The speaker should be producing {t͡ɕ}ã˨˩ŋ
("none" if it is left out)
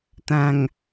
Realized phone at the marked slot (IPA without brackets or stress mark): t̪